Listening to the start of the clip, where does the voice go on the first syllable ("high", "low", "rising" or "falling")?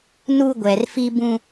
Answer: high